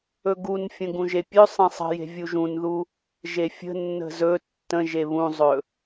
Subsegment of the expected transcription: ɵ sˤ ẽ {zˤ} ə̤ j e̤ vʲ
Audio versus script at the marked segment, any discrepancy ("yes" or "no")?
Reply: yes